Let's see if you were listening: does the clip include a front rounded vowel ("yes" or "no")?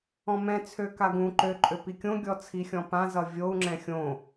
yes